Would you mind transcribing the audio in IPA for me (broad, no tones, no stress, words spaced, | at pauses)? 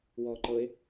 wɔːǃɤe̯